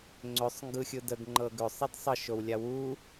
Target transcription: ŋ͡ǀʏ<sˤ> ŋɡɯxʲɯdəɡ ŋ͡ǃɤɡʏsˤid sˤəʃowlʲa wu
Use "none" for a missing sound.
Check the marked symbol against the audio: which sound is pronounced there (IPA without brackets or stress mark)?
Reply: sˤ